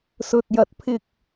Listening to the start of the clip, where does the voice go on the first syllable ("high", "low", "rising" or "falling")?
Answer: low